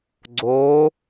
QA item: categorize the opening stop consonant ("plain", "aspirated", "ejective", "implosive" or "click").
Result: click